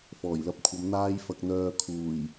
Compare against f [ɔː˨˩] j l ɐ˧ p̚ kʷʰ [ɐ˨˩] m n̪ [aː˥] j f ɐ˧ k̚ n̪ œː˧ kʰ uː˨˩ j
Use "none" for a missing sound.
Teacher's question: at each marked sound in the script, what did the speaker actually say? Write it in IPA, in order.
ɔː˨˩, ɐ˨˧, aː˥

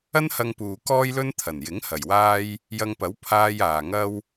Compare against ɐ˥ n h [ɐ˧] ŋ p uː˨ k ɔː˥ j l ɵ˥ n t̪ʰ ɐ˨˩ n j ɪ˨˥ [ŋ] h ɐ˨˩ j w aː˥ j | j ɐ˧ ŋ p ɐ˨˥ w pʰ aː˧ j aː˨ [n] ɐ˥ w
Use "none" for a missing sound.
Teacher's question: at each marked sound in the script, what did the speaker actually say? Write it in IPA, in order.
ɐ˧, ŋ, ŋ

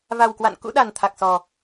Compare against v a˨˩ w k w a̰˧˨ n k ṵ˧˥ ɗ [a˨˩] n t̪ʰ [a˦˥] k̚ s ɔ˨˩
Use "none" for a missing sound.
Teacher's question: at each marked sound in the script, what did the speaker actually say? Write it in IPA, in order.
a˨˩, a˨˩

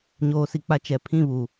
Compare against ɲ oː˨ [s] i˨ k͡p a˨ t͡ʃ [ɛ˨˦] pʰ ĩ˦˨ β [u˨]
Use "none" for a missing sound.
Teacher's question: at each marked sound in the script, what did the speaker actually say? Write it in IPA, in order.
s, ɛ˨˦, uː˨

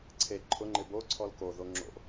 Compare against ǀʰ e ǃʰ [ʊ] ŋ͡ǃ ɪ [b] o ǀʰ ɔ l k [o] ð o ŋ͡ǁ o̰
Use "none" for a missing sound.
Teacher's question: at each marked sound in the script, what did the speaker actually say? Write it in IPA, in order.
ʊ, b, o

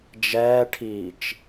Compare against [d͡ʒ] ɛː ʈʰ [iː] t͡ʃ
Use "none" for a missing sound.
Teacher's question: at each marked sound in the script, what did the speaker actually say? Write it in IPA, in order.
d͡ʒ, iː

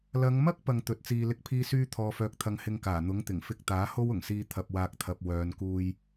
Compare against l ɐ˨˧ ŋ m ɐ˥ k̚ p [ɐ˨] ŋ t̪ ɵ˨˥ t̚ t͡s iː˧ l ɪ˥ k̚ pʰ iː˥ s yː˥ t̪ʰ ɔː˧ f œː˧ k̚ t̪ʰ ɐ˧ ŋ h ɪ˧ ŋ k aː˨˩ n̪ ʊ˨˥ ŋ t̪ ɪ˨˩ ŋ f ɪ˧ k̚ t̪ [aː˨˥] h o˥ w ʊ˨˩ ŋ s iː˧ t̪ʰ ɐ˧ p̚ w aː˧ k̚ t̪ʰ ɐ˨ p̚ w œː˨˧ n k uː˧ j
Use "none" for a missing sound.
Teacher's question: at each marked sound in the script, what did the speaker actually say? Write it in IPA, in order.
ɐ˧, aː˨˥

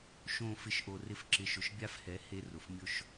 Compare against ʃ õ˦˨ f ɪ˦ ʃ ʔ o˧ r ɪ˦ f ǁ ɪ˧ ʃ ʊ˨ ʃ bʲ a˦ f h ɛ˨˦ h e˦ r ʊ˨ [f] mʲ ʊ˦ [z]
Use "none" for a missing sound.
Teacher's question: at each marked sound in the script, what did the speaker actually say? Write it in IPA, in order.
f, ʃ

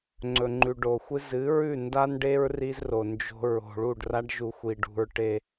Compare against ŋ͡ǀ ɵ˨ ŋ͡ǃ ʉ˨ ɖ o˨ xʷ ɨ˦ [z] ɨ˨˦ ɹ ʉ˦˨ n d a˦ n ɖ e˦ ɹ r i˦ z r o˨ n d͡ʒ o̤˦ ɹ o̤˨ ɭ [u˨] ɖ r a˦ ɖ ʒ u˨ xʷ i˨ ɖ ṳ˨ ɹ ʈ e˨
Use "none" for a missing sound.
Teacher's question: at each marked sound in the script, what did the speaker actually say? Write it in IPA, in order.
z, u˦˨

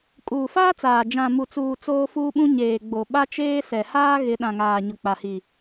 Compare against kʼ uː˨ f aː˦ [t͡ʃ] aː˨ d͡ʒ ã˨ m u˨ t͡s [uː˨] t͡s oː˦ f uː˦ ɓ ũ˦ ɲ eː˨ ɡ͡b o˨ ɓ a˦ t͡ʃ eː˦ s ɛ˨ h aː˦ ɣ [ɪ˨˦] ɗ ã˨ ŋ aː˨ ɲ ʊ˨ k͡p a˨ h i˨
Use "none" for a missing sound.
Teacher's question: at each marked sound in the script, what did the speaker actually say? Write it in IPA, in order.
t͡s, uː˨, ɪ˨˦

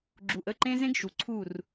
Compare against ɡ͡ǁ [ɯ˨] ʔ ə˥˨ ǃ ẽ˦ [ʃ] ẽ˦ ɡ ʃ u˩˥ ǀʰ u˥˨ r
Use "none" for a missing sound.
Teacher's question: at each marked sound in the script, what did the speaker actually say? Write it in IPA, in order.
u˨, z

